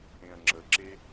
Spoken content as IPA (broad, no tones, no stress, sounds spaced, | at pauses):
ẽ ɐ̯ ŋ͡ǁ ə ǁ e